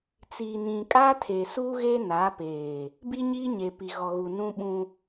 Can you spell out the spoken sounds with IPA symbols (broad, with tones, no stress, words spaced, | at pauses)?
t͡siː˨nĩ˨kʼaː˦tʰe˨ suː˦ɣeː˦ naː˨˦peː˨ | bi˦ɲiː˦ɲe˨pi˨ ɣɔ˨ɣu˨ nũ˦ ɓũ˦